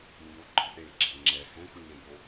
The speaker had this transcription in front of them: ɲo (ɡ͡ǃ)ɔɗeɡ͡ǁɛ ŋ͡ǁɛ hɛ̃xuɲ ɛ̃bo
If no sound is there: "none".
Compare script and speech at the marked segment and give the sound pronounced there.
ɡ͡ǃ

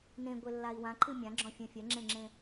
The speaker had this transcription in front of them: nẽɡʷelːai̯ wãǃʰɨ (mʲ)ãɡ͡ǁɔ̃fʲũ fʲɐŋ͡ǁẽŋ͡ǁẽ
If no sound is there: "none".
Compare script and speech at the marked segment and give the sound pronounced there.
mʲ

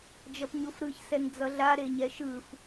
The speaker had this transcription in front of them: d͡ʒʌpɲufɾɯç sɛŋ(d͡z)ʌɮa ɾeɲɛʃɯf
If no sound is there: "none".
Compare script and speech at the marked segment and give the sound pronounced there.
d͡z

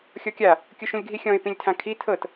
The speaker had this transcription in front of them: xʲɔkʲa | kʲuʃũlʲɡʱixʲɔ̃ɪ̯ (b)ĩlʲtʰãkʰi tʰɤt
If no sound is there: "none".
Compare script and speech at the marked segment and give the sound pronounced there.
p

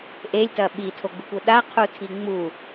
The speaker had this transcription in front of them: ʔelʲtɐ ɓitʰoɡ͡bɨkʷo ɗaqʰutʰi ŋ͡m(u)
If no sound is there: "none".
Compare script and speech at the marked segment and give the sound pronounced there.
u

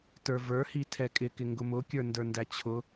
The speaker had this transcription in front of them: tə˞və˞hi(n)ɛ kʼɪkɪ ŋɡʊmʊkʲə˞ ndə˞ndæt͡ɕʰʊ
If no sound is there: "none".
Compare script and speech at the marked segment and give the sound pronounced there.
tʰ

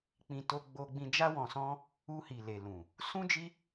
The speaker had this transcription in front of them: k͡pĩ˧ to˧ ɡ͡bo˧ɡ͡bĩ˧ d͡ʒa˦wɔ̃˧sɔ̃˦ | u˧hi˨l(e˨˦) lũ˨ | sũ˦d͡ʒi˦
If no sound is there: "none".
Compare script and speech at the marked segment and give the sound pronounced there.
e˨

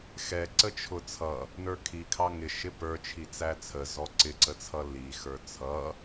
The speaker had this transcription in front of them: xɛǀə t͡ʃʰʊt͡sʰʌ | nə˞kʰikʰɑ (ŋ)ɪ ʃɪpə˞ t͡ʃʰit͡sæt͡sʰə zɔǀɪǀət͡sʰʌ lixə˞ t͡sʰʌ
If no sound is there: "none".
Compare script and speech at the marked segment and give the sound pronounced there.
ŋ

